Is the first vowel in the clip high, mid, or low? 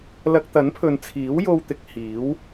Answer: low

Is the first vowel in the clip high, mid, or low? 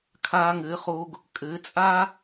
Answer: low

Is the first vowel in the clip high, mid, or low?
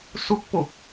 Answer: high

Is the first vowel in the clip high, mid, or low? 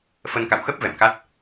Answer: mid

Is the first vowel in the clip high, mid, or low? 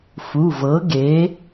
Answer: high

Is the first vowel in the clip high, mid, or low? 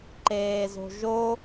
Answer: mid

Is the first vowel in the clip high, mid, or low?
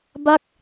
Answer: low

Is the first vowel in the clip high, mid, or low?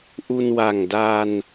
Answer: high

